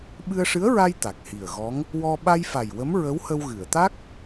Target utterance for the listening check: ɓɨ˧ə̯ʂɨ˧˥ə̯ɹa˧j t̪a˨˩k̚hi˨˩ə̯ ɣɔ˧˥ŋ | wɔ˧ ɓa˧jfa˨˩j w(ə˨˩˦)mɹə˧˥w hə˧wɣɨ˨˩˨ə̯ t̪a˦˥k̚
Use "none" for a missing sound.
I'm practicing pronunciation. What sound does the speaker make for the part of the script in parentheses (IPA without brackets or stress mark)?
ə˧˥